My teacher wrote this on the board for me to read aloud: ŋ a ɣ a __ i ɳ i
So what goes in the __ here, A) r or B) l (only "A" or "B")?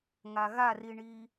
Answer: A